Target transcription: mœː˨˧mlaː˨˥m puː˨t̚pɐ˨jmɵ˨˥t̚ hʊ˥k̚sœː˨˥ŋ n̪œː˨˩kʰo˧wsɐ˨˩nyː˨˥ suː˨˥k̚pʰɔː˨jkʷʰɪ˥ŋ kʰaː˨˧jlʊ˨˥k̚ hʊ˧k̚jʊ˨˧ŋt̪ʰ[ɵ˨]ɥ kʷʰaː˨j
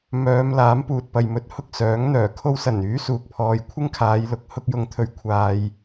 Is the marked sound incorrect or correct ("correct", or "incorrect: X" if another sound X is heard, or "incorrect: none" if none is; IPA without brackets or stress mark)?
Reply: correct